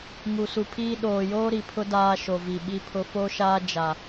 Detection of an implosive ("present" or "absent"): present